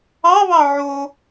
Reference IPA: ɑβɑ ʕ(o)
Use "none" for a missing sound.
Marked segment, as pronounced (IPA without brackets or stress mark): o